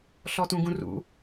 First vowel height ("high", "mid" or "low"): mid